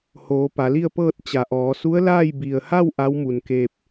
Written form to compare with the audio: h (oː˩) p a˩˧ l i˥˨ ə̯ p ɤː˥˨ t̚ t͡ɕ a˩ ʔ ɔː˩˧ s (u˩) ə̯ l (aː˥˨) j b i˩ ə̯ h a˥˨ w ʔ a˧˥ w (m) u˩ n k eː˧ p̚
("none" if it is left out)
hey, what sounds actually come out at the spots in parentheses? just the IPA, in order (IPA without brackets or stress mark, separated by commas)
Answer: oː˩˧, u˧˥, aː˥˨, m